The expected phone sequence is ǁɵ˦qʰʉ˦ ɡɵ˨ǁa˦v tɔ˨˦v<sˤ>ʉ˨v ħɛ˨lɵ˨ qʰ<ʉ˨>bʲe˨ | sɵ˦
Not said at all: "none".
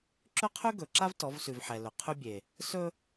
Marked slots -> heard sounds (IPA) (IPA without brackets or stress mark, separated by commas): s, ʉ˦